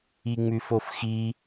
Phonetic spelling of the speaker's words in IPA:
iŋ͡mʉfofxi

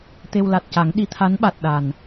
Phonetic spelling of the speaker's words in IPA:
t̪e˧wla˨˩t̚ca˨˩˦ŋ ɗi˧˥t̪ʰa˧˥nɓa˨˩t̚ ɗa˨˩n

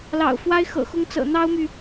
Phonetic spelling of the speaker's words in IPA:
lɑ̰˨˩ʊ̯fwa˥ɪ̯xɤ̰˨˩xʊ˥ŋ t͡sɤ̰˨˩n̪ɑ˥ʊ̯my˨

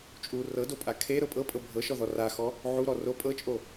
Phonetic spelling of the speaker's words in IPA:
t͡ʃʼu rɤdopʼa kʰe ɾɤpʼɤpʼɤ bʱɤʃɔðɔ raxɔ | ʕuɾɔ ro pʼɤt͡ʃʼo

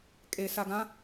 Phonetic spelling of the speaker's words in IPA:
kʼes aɡã

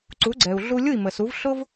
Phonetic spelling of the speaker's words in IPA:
ǀu˩˥ɡ͡ǀɛ˩u̯ ɮu˧lʲu˥˩i̯mə˩su˩˥v ɬʊ˥v

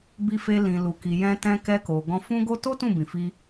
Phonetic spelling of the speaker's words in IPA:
bi˧fe˧ lĩ˨ lu˨ki˨jɛ̃˧ tɛ̃˧kɛ˧ko˨ ɡɔ̃˧fũ˦ɡo˦ to˦ tũ˦˨bĩ˨fi˧

